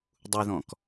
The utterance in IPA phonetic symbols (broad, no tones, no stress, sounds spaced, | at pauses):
dˤ u ð ɔ̃ k